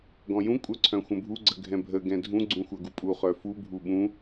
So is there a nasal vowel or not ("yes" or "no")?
yes